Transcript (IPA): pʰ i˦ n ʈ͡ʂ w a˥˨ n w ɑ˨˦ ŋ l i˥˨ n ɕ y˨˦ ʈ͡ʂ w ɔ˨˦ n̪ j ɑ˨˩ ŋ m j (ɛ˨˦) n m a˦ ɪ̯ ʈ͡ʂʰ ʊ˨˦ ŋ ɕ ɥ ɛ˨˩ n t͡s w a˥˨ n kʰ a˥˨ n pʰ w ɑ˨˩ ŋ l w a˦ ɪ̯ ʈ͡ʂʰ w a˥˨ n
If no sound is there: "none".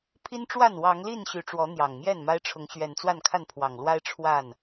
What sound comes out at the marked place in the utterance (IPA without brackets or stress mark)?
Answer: ɛ˥˨